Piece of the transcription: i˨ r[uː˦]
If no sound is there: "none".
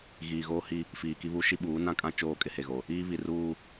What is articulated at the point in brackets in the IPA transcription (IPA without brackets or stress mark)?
uː˦